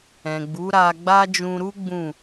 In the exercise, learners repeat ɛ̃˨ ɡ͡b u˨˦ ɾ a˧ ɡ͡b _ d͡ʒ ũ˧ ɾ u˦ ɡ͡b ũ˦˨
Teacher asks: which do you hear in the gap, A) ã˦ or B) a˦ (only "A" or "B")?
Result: B